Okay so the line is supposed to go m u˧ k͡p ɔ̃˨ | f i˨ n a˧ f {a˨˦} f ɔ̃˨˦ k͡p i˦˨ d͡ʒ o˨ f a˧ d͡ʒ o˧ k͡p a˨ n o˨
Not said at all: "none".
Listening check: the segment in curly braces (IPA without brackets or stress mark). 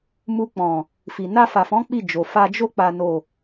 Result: a˨